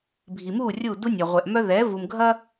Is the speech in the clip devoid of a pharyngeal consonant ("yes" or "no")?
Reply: yes